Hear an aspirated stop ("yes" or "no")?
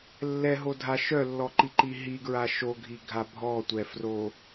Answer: no